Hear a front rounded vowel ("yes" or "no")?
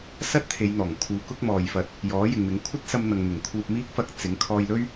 no